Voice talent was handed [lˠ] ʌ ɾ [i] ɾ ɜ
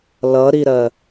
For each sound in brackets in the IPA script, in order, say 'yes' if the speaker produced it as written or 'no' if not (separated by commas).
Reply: no, yes